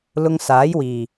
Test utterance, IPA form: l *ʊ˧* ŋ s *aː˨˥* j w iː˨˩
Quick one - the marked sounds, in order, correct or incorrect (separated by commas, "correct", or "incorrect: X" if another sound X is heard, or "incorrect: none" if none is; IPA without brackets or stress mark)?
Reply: correct, correct